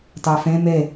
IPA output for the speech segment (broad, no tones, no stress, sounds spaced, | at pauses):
t ɑ f ɛ̃ m ɛ